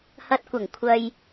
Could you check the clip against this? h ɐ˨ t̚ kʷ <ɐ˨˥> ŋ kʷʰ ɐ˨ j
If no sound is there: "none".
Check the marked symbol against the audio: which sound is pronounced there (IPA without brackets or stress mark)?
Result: ɐ˨˩